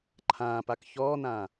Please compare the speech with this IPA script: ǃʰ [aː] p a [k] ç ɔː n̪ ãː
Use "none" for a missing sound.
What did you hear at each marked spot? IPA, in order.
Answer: ãː, k

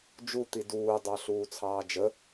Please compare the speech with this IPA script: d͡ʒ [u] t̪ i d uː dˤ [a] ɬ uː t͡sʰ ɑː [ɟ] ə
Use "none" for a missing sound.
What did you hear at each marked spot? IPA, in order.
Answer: u, ɑ, d͡ʒ

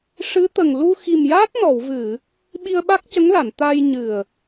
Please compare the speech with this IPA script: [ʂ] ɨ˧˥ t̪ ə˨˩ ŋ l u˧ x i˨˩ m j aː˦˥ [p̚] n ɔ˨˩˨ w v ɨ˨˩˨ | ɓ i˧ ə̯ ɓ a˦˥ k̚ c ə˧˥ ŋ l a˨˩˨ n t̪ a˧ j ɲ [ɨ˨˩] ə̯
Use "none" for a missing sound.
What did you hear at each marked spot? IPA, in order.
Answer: ʂ, t̚, ɨ˨˩

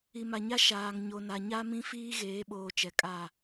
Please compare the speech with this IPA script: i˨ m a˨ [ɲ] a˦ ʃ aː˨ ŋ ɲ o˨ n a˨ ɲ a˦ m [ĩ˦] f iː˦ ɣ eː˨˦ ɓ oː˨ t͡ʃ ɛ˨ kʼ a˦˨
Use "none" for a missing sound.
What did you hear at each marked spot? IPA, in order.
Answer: ɲ, ĩ˦

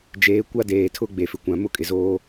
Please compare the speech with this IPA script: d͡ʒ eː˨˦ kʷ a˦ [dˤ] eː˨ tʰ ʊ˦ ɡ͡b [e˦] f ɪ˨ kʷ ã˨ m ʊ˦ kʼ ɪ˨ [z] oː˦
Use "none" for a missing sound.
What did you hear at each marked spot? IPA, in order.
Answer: d, e˨, z

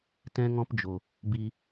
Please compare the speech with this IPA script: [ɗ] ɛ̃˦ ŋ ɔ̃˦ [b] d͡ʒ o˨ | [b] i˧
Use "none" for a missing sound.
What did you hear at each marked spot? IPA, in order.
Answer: t, p, b

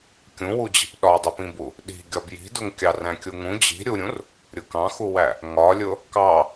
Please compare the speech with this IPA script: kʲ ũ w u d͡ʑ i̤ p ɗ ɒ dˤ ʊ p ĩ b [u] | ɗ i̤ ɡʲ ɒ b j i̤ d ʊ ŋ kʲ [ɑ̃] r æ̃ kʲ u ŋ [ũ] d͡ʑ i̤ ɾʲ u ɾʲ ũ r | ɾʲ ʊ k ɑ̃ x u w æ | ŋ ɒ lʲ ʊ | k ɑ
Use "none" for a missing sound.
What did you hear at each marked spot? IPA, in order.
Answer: u, ɑ, ũ

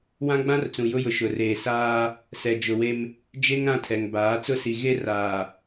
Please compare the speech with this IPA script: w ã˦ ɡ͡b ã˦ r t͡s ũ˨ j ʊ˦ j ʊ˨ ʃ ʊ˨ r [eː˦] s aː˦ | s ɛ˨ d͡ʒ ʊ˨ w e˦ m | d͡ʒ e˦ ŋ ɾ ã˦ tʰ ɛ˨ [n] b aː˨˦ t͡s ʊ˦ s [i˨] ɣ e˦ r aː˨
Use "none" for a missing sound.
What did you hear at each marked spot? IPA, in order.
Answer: eː˨, ŋ, i˨

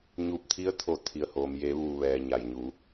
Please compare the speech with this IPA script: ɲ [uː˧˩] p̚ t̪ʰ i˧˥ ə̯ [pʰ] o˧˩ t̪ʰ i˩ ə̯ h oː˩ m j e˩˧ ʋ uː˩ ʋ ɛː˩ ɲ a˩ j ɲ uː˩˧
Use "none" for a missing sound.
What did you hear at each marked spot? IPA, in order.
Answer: uː˧˩, t̪ʰ

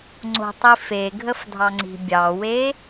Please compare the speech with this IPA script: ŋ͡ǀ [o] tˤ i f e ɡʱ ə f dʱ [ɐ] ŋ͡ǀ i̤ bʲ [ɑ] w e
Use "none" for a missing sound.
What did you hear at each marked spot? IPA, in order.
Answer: o̤, ɑ, ɑ

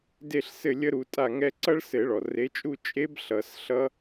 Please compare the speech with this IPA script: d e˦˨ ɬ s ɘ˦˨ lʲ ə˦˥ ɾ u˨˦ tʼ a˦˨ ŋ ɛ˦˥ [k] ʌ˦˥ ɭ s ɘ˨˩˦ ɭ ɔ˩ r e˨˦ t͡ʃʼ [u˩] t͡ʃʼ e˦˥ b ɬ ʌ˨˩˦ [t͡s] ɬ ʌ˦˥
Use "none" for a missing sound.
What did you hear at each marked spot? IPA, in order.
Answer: ǀ, u˦˨, s

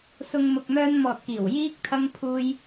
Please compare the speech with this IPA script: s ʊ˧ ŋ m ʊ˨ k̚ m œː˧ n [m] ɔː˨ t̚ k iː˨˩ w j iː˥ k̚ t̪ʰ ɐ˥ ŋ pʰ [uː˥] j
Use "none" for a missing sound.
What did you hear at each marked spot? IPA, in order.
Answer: m, uː˥

